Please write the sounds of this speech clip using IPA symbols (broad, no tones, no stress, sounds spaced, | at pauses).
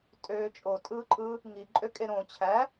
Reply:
tʼ øː t͡ʃʼ o tʼ ɯː ǃʼ ɯ | ŋ i ǃʼ ø kʼ e ɾ õ t͡ɕʰ æ